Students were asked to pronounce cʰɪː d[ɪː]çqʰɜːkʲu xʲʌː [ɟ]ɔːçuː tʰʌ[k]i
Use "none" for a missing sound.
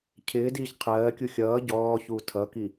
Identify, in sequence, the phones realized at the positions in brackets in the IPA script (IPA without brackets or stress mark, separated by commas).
iː, ɟ, k